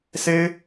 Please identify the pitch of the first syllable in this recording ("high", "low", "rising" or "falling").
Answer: high